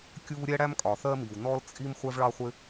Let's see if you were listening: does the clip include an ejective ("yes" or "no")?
yes